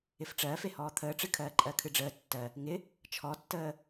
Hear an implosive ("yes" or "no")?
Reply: no